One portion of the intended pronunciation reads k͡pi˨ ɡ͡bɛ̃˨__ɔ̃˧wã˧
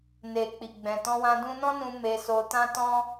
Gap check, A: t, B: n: A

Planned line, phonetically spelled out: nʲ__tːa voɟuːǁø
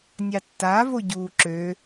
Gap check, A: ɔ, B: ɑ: B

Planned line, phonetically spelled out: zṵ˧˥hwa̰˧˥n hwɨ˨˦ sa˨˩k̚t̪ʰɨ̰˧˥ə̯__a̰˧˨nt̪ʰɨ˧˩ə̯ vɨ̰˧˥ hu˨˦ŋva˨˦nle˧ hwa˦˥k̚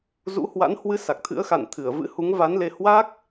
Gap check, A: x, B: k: A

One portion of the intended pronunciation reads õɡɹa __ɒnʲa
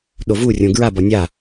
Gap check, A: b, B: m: A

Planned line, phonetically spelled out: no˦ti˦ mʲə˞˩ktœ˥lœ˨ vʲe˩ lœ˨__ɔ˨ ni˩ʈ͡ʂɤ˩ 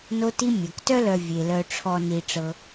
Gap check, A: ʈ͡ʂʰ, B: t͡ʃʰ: A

